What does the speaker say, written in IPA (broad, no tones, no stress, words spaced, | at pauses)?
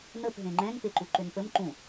n̪əp ɦẽŋ͡ǃɛ̃ŋ peǃuǃʏnpəm ǃũ